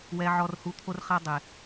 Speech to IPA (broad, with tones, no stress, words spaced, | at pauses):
wɛ˦ʕɔ˦rhu˦ t̪ʰo˦rχa˦ dˤe˨